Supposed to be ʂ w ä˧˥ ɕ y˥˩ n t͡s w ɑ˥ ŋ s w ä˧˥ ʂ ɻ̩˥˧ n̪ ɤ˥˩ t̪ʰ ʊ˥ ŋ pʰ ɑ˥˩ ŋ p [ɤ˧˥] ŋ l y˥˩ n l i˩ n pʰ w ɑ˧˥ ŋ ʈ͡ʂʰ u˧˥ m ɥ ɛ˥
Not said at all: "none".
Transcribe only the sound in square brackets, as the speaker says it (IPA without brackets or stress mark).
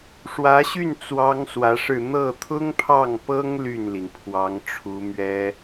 ɤ˥